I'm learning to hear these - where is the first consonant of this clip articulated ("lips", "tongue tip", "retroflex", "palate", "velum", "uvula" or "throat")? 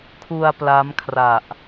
velum